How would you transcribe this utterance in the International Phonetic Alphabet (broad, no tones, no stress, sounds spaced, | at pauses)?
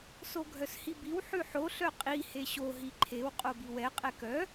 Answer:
s o ɡʱ œ s h i b i w ħ ʉ ħ o ɬ œ qʼ i h e ɕ o ɦ i ǃʰ e w qʼ o b i w ɛ qʼ ɛ k œ